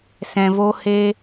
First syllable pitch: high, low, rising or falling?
low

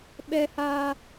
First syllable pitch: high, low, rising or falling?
low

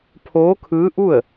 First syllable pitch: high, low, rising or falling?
rising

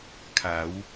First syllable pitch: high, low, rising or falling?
rising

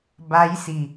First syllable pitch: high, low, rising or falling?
rising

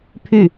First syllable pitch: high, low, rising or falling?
falling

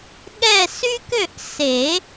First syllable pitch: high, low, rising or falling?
falling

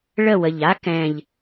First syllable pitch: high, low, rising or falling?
falling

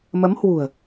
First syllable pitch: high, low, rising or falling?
rising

